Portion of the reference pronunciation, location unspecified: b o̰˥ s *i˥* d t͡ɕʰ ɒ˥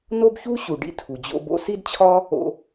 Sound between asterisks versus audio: correct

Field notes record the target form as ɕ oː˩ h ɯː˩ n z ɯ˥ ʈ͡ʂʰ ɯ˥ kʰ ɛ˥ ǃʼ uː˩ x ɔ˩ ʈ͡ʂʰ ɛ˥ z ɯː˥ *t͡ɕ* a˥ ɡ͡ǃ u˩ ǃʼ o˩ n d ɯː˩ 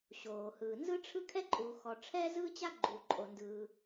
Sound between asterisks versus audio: correct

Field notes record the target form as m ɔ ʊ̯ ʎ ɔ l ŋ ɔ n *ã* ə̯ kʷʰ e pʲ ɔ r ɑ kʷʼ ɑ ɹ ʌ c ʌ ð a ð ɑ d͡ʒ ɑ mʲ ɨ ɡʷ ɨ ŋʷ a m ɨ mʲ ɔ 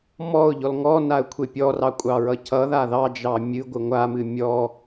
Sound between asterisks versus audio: incorrect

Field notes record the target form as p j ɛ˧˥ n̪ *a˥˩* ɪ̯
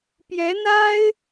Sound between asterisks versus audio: incorrect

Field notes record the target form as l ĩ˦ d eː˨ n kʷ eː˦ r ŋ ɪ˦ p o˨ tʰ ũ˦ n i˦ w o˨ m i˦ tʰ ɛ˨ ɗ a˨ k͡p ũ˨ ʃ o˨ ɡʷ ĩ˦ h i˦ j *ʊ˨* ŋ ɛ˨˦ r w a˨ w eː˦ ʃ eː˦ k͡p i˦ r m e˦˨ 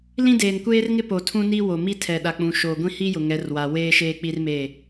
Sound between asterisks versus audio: correct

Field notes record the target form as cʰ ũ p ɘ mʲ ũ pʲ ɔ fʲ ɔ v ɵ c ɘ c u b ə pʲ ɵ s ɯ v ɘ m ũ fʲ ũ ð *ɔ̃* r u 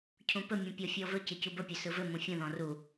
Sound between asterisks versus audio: correct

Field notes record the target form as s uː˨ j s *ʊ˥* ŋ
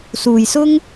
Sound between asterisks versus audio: correct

